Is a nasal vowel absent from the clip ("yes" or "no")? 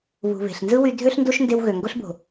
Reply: yes